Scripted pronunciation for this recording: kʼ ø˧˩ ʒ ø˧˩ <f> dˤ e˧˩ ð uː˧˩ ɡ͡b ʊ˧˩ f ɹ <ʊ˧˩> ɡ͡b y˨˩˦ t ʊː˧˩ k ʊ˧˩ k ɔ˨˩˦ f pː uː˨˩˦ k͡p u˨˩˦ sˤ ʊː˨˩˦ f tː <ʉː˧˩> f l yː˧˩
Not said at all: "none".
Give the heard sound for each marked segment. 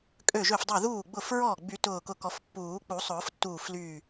f, ɔ˧˩, uː˧˩

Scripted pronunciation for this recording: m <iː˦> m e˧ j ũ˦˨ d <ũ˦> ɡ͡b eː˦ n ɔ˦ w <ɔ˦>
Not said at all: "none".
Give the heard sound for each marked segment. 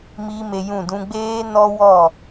iː˦, ũ˦, ɔ˦˨

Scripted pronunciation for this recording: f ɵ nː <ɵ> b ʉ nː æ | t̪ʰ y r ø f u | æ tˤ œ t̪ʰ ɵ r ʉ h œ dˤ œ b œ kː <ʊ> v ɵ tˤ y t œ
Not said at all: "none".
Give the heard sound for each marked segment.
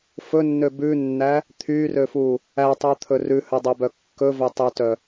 ø, ɵ

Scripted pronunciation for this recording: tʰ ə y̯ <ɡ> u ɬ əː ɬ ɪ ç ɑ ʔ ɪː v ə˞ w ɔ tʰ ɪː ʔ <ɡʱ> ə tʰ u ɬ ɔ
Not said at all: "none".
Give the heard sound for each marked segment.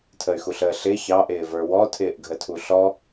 x, ɡʱ

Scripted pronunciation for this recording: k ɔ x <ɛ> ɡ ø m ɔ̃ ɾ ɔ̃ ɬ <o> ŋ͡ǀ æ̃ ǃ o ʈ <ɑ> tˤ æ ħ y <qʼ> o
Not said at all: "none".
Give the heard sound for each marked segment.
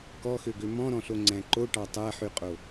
ø, o, ɑ, qʼ

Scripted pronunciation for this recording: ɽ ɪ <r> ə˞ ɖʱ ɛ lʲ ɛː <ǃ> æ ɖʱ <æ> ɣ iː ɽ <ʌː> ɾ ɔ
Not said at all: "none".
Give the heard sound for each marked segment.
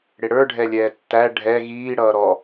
ɽ, tː, ɛ, ʌː

